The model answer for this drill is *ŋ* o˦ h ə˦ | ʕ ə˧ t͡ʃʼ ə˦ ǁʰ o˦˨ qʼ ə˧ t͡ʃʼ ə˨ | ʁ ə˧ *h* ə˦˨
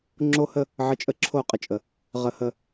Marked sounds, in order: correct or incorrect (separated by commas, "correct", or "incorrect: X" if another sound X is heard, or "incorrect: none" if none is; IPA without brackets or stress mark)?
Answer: incorrect: ŋ͡ǁ, correct